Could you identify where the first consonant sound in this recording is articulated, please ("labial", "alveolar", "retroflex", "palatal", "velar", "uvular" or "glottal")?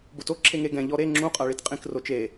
labial